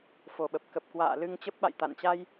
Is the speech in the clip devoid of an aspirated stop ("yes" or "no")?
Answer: yes